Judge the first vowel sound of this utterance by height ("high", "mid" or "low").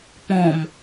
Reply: mid